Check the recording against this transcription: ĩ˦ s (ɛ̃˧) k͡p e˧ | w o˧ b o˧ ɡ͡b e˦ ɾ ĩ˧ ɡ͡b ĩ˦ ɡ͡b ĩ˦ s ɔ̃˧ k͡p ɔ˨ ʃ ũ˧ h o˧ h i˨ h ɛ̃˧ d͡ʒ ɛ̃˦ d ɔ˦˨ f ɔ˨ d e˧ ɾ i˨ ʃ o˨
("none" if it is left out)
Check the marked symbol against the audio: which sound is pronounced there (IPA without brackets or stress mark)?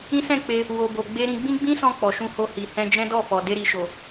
ɛ̃˦˨